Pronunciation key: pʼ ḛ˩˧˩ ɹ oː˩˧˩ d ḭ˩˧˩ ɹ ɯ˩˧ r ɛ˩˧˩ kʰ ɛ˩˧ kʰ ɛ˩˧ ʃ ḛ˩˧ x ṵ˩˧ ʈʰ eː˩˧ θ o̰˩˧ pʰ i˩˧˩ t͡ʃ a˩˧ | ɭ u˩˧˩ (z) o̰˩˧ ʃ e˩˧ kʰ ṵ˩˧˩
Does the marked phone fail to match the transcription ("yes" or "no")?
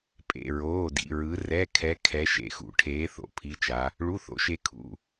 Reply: yes